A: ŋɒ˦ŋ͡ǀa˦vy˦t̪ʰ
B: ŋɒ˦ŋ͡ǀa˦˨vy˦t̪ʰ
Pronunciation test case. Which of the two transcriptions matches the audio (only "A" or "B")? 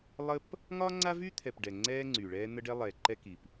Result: A